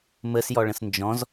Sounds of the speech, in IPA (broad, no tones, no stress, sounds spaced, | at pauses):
m ə s j ɔ ɭ ə̃ s n d͡ʒ ɔ̃ z